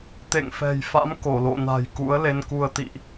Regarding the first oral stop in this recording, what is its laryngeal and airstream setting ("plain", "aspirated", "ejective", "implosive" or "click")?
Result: plain